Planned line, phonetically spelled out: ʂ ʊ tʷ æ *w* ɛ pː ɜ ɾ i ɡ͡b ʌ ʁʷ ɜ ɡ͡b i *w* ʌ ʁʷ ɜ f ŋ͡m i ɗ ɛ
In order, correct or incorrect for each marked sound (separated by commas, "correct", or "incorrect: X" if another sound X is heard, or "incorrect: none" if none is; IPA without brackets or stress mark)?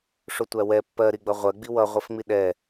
correct, correct